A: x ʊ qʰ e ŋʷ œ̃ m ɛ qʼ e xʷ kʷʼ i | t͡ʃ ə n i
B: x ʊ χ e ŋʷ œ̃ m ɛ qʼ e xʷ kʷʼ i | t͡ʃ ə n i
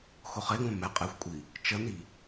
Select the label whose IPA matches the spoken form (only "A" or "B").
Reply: B